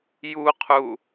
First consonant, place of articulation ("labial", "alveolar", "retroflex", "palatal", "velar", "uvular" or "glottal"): palatal